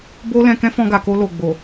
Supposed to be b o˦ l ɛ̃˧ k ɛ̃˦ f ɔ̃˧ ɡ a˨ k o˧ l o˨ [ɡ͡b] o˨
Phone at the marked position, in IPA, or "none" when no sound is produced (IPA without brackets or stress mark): ɡ͡b